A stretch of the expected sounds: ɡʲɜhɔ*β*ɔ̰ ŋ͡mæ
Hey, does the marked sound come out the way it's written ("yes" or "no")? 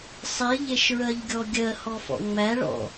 no